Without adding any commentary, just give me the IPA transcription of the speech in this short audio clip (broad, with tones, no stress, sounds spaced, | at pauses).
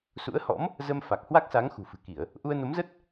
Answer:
s ṵ˧˥ ə̯ h ɔ̰˧˥ m | z ə˧ m f a˨˩ k̚ h w a˦˥ k̚ s a˨˦ ŋ x ṳ˨˩ f ɨ̤˨˩ k i˧˩˨ ə̯ | ʔ u˧ ə̯ n o˨˦ m z ə˦˥ t̚